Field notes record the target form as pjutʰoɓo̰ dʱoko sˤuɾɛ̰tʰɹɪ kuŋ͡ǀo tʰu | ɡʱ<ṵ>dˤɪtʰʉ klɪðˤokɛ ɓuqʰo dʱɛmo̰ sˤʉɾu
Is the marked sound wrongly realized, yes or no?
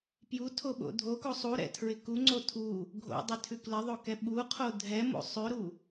yes